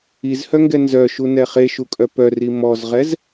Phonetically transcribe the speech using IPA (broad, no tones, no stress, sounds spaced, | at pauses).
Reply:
i z h œ ŋ ɡ ɛ n z œ ʃ u n ɛ χ e ʃ u kʼ œ p œ r i m ɔ z ʁ ɛ z